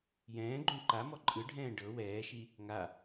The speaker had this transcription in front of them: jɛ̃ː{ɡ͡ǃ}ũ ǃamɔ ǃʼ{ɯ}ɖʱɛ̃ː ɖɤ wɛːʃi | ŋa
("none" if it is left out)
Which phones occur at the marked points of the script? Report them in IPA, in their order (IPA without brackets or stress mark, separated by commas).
ɡ͡ǃ, ɯ